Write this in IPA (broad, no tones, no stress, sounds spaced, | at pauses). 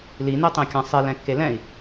l i n e tˤ ẽ kʲ ã sˤ e l ɛ̃ kː e l ɛ̃ i̯